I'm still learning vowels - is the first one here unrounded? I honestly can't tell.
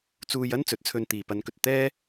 no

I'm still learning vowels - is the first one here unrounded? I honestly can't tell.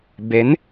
yes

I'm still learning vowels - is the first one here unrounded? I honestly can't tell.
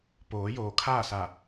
no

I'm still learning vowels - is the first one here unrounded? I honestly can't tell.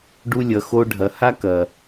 no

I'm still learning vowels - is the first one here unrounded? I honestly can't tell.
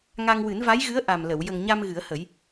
yes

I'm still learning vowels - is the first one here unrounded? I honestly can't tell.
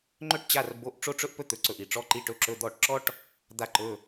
no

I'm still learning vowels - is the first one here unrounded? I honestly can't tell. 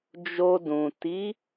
no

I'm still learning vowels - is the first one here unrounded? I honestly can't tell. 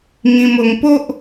yes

